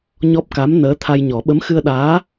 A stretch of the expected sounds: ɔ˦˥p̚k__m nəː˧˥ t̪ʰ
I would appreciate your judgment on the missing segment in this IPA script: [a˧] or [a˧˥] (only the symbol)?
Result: a˧˥